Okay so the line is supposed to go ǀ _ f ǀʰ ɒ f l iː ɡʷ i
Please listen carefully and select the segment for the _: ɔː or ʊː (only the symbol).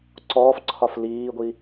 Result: ɔː